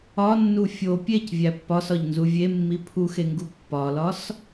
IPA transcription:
ɒ nː u fʲ o pʲ e c vʲ æ pː ɒ s ɒ ʎ n z u vʲ e mː i pʰ u x e ŋ ɡ u pː ɒ l ɒ s

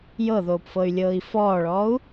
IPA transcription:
j ɤ ð oː p f ɤ y̯ lʲ ɤː i̯ f ɔː ɭ ɔː u̯

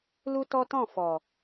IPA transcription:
l u˦ t ɔ˦ t ɔ̃˦˨ f ɔ˨

